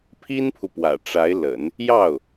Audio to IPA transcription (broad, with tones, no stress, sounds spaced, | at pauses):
pʰ i˥ n pʰ u˨ p w ä̰˨˩ ʈ͡ʂ a˧˥ ɪ̯ l ə̰˨˩˦ n | j ɑ˥˩ ʊ̯